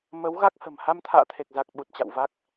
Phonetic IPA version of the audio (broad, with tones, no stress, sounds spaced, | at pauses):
m ə˨˦ w ɣ a˦˥ k̚ h ə̤˨˩ m h a˧ m t̪ʰ a̰ː˧˨ t̪ʰ e˨˩ k̚ z a˨˩ k̚ ɓ u˨˩ t̚ t͡ɕ a̰˧˨ w v a˦˥ k̚